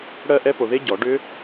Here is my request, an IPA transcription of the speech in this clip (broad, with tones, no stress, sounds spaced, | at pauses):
ɽ ɜ˥˩ ʔ ɛ˦˥ p o˨ ð e˦˥ ɟ ɔ˨˩˦ ɖ ʏ˦˥